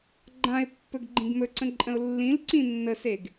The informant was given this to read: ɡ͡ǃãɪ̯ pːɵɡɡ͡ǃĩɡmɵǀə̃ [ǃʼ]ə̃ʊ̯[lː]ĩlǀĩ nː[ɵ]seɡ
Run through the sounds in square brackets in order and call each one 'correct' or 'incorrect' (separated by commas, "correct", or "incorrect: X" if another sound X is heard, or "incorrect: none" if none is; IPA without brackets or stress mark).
correct, correct, incorrect: ə